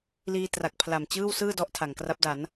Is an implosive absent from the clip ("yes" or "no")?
yes